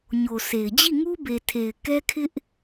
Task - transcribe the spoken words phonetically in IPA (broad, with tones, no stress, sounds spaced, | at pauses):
ɲ o˨ sʰ e˨ ɪ̯ d͡ʑ i˦˨ ŋ u˦ b e˨ tʰ e˨ ɪ̯ k ɛ˦ kʰ ɪ˦ ʔ